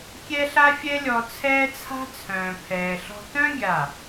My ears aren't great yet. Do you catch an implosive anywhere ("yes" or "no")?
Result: no